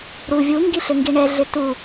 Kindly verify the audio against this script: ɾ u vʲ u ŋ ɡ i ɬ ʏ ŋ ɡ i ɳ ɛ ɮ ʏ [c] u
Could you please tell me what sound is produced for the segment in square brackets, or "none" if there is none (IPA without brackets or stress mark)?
t